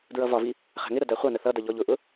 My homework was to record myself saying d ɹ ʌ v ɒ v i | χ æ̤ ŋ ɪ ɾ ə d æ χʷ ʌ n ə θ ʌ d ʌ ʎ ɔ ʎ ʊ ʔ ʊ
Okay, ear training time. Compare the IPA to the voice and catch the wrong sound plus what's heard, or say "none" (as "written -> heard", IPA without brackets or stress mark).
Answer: none